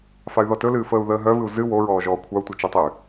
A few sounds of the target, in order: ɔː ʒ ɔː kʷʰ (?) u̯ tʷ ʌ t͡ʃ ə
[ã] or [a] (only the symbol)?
a